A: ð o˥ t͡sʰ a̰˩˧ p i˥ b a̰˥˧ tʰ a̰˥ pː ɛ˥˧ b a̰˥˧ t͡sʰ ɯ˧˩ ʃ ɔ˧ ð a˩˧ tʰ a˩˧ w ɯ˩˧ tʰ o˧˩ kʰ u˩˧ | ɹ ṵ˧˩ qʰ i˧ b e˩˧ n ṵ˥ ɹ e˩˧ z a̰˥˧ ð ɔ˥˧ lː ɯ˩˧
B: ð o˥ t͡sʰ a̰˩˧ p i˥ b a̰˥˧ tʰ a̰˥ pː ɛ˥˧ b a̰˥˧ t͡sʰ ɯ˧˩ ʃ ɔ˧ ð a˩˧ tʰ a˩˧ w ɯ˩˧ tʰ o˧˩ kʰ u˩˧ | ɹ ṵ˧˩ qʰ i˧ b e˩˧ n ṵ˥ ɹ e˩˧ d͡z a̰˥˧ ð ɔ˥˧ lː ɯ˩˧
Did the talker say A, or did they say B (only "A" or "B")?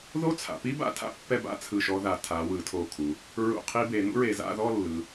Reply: A